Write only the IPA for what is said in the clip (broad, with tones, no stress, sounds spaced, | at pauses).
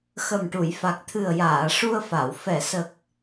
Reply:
x ə˨˩ m ʈ u˨˩˨ j f a˨˩ k̚ t̪ʰ ɨ˨˩ ə̯ j aː˨˩˨ ʂ u˧ ə̯ f a˨˩˨ w f ɛ˨˩˨ s ə˨˩ k̚